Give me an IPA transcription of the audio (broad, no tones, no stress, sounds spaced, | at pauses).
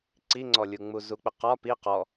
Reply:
ǀ i ŋ͡ǀ ɔ lʲ u ŋ͡m u z u k͡p ɪ q ɒ p i q ɔ